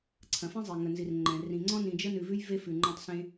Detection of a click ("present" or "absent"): present